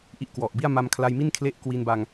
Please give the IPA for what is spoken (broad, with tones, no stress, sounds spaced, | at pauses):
ʔ i˦˥ ʔ k w ɔ˨˩ ʔ b i˥˩ a̯ m a˧ m kʰ l a˧ j m i˥˩ n kʰ l e˦˥ ʔ k w i˧ n b a˧ ŋ